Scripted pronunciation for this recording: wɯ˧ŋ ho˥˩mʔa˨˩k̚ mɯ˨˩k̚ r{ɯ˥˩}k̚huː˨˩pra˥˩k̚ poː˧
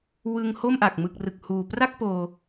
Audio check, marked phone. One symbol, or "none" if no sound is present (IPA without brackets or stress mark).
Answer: ɯ˨˩